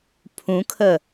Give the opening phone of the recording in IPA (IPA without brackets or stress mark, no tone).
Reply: pʰ